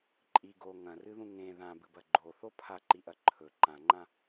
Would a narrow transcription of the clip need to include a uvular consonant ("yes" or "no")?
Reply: no